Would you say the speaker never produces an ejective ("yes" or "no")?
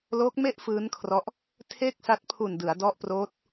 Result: yes